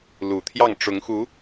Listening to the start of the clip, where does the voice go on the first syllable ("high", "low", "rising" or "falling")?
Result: low